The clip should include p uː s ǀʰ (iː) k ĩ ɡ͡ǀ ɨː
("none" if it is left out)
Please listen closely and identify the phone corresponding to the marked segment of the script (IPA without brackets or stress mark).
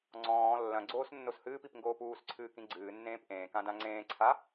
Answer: ɨː